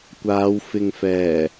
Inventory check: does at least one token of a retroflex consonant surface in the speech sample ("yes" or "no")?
no